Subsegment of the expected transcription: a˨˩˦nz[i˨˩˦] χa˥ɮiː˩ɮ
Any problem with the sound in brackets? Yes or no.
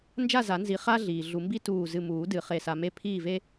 no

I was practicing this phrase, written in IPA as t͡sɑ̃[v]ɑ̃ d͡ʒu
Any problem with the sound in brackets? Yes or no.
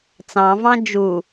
no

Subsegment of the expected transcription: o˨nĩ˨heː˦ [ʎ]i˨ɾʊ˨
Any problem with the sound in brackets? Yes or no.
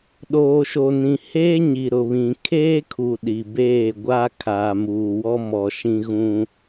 yes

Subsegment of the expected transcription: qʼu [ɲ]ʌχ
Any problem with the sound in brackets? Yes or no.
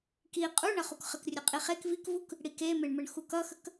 yes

